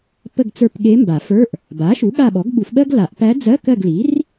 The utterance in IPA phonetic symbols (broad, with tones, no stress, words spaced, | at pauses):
pə˦˨ɡt͡sə˞˦˨p ɠe˧˥mba˨˩˦fə˞˧˥˧ʔ | ba˩˥ʃu˩˥ ɠa˦˨ɓɔ˩˥ɡɓu˨˩˦fɓɜ˥ɡ la˨˩˦ʔpæ˧˥d͡zɜ˧˥˧ kɜ˦˨ɡli˩˥r